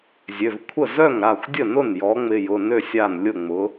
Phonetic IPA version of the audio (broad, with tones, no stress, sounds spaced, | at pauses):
zʲ ø˩˧˩ v kʷʰ ə˥˩ z œ˥˩ ŋ ɾ a˥˩ xʷ dʲ ə˥˩ n ʊ˥˩ n j ɔ˩˥ ŋ͡m ɪ˩˧˩ j ʊ˩˧˩ n ø˥˩ sʲ a˥˩ n lʲ ʊ˥˩ ŋ͡m ʊ˩˥